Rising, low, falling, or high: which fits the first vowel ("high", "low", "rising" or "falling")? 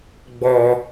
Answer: low